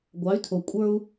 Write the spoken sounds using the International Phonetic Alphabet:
ɡʷ ɑ˩˧ y̯ tʰ o˩ kʷʼ ə˞˧ u̯

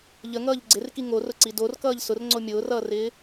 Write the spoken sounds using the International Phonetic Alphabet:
ʎ ə ŋ ʌː ʎ ɡ͡ǀ ɪ r k i ŋ o r ʊ ǀ i d o r k ʌː ʎ s ʊ r ŋ͡ǀ o mʲ ʊː r ʌː r ɪː

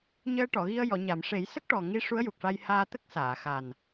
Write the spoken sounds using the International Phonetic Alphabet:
ɲ əː˧ ʈ ɔ˨˩˨ ɣ i˧ ə̯ j ɔ˨˩˨ ɲ a˨˩˨ m ʂ e˨˩˦ j s ə˦˥ k̚ ʈ ɔ˨˩ ŋ i˧ ʂ u˧˥ ə̯ j u˨˩ k̚ ʂ a˧ j h aː˧ t̪ ə˦˥ k̚ s aː˨˩˨ x a˨˩ n

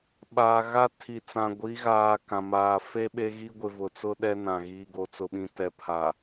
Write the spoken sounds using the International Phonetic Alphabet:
ɓ aː˨ ɣ a˦ tʰ i˨ t͡s ã˨ ɡʷ i˨˦ ɣ aː˨ k ã˨ m aː˨ f e˦ ɓ e˦ ɣ i˦ ɡʷ ɪ˨ v ʊ˨ t͡s ʊ˦ ɗ ɛ˦ n ã˨ ɣ iː˨ ɡ o˨ t͡s ʊ˨ ɓ ĩ˨ t ɛ˨ pʰ a˨

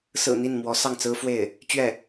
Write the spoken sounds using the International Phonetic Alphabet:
s ɹ̩˨˩ n̪ i˥˩ n m w ɔ˧˥ s ɑ˥˩ ŋ t͡s ɹ̩˥ f w e˥˩ ɪ̯ | t͡ɕ ɥ ɛ˥˩

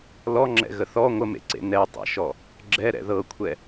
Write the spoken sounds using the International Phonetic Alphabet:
l ɔ ŋ͡ǁ ɛ̰ ɣ ə θ ɔ ŋʷ ə m ḛ ǀ ḛ n ɛ tˤ ɛ̰ ʃ ɔ | ɡ͡ǁ ɛ ɾ ɛ̰ ð ɤ kʷʰ ɛ

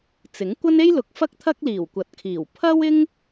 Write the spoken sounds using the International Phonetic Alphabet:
t͡s ɪ˨˥ ŋ kʷ ɐ˥ n e˥ j l ʊ˨˥ k̚ f ɐ˥ k̚ t̪ʰ ɐ˥ k̚ l iː˨˩ w kʷ ɐ˨ t̚ kʰ iː˨˩ w pʰ ɐ˥ w ɪ˥ ŋ

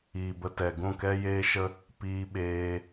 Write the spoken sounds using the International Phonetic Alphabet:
iː˨ b ə˧ t ɛ˨ ɡ ũ˦˨ k ɛ˦ j eː˦ ʃ ə˦ | p iː˧ ɓ eː˧

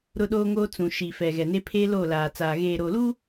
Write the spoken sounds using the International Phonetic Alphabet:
ɾ ʊ˦ ɗ oː˦ ŋ oː˦ t͡s ũ˨ ʃ i˨ f ɛ˨ ɣ ɛ˨ n e˦ pʰ eː˦ l oː˦˨ l aː˨ t͡s aː˨ ɣ eː˨ ɾ oː˨ l uː˦

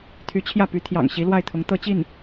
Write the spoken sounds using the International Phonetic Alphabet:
t̪ʰ y˧˥ t͡ɕʰ j ä˥˩ p y˧˥ t̪ʰ j ɑ̰˨˩ ŋ ɕ i˧˥ l w a˥˩ ɪ̯ t̪ʰ ʊ˧˥ ŋ t̪ ɤ˥˧ t͡ɕ i˥˩ n

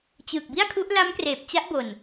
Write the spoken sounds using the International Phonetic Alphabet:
t͡ɕ ɯː˨˩ k̚ b i˥˩ a̯ kʰ u˦˥ ʔ l a˦˥ m k r eː˨˩ p̚ t͡ɕ a˦˥ ʔ b o˨˩ n

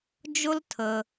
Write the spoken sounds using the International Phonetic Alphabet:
d͡ʒ ʊ˥ l tʰ ə˨

